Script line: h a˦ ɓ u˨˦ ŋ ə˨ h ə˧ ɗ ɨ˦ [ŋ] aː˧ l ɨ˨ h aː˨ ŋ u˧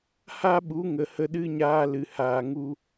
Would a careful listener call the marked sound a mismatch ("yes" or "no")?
yes